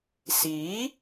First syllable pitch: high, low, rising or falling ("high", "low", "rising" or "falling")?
rising